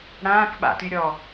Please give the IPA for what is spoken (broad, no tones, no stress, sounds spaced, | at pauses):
ɽ ãː k ɓ a̰ t y ɾʲ ɔ